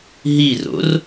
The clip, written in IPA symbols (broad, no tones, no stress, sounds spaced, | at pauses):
ɦ i r o̰ r